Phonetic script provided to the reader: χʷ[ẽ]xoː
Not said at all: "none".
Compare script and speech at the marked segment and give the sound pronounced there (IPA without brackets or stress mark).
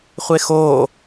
e